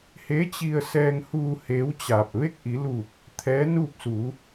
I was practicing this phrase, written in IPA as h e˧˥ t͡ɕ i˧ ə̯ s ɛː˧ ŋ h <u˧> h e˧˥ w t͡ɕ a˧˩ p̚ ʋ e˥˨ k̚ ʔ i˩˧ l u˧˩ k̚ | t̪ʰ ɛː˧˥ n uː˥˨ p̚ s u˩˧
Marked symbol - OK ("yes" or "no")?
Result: no